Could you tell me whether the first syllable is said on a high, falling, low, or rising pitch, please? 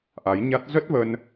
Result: rising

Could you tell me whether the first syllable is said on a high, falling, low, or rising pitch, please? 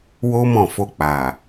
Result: high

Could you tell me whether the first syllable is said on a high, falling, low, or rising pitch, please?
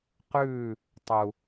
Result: falling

